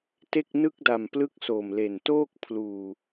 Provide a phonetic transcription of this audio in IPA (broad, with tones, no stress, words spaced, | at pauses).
te˥˩k̚nɯ˥˩k̚ da˨˩mplɯ˦˥k̚ so˨˩mle˨˩ntoː˥˩k̚ pʰluː˨˩